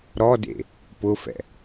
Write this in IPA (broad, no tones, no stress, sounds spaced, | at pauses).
ɾ ɔ d ḛ | p ʊ f ɛ̰